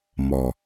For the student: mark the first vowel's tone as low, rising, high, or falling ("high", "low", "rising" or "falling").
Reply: low